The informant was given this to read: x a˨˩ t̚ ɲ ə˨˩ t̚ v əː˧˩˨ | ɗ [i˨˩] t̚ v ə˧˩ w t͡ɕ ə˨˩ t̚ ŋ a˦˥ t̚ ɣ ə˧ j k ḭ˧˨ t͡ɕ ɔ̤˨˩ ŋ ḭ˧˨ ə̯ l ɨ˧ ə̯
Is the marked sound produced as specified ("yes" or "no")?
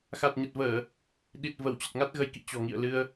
yes